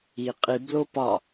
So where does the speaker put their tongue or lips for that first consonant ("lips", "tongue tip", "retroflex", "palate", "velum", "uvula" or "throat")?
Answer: uvula